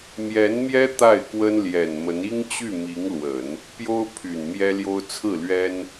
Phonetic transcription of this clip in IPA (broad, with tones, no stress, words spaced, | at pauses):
mjɛ˧˥nmjɛ˥ t̪a˥˩ɪ̯kwə˥nljɛ˨˩nmə˧˥n i˥ŋt͡ɕy˥˩mi˧˥ŋlwə˨˩˦n | pjo˥ʊ̯ pʰy˨˩nmjɛ˥ljo˥ʊ̯ t͡sʰɹ̩˥˩lɥɛ˥n